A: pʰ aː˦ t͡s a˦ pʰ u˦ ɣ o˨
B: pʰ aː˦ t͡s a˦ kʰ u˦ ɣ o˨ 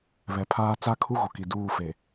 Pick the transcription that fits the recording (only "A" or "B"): B